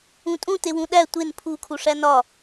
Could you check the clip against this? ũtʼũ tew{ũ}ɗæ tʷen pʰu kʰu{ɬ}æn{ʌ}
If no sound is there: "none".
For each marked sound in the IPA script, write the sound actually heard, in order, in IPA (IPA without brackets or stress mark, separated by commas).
ũ, ʂ, ɒ